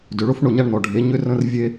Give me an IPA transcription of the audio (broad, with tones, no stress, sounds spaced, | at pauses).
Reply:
d ʏ˨ ɭ ʊ˦ f ɳ ʊ˦˨ ɲ a˦ ɳ n̪ ɔ˨ ɖʱ e˨˦ ɲ ʏ˧ r ə̃˧ r vʲ e˦